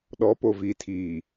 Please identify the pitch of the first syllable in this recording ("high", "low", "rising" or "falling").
rising